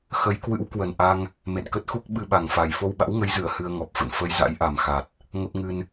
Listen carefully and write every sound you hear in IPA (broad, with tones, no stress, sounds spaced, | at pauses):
x ə˨˦ j k w ɨ̰˧˥ w k w ə˨˩ n ʔ a˧ ŋ | m ḛ˧˨ n k ə˦˥ t̚ x u˦˥ k̚ ɓ ɨ˧ ɓ a˨˩ ŋ f a˨˩ j f o˧ w ɓ a̰˧˥ w ŋ ə˨˦ j z ɨ˧˩ ə̯ h ɨ˧ ə̯ ŋ ɔ˨˩ p̚ f ə̰˧˨ n f ə˧ j z a̰˧˥ j ʔ a˨˩ m x a˨˩ t̚ | ŋ ə˦˥ p̚ ŋ ɨ˧ n